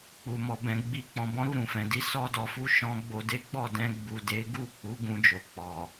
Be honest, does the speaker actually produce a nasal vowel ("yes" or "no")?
yes